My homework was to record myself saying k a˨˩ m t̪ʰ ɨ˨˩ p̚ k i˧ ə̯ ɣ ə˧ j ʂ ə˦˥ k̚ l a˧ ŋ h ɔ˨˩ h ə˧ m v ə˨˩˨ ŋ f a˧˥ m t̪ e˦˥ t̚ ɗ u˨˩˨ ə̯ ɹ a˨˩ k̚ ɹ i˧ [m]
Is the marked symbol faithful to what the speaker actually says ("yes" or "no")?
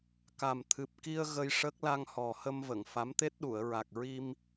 yes